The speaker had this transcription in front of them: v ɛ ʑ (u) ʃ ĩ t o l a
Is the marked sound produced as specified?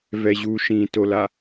yes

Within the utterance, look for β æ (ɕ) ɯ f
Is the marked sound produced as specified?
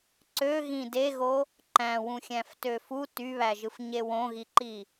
no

